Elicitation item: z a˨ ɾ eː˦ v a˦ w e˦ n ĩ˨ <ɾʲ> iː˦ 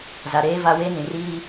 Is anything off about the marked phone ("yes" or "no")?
yes